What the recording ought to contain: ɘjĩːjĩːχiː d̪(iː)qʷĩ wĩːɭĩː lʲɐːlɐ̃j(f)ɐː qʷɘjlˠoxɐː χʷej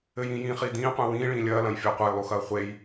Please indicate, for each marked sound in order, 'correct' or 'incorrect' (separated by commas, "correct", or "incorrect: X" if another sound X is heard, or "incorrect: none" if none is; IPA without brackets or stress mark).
incorrect: ĩː, incorrect: fʲ